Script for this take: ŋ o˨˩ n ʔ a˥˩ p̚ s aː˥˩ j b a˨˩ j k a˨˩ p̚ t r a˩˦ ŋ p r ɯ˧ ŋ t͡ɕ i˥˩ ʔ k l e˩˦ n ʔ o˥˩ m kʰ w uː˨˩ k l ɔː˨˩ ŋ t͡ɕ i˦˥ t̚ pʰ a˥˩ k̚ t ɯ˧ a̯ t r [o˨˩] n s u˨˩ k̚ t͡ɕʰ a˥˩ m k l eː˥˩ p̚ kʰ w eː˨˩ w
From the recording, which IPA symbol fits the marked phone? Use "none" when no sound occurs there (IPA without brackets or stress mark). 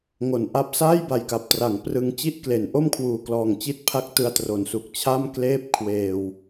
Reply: o˩˦